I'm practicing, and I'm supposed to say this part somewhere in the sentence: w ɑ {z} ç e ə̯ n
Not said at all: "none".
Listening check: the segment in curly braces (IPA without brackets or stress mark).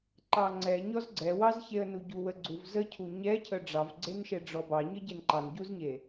z